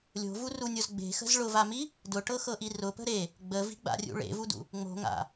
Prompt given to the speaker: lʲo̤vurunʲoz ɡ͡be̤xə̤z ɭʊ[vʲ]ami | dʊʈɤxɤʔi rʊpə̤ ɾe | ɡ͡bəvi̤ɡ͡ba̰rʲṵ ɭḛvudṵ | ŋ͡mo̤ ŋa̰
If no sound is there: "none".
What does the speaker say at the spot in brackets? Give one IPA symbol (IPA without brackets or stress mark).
v